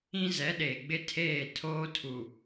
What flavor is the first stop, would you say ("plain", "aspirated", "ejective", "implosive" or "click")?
implosive